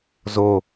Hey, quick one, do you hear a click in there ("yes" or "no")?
no